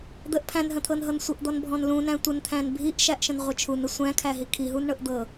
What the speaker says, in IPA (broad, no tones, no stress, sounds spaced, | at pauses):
d̪ ə ʔ pʰ æ̃ n ɦ ə̃ t̪ʰ ɤ n ɦ ɤ n sʷ ə ʔ d̪ ɔ n bʱ ɔ̃ n l ũ n æ̃ tʷ ə n t̪ʰ æ̃ n bʱ i ʔ ʃ æ ʔ ʃ ə̃ n ʁʷ ə t͡ʃʰ u n ə sʷ æ̃ kʰ æ ɦ i kʰ i ɦ u n ɳ ɤ ʔ d̪ ɤ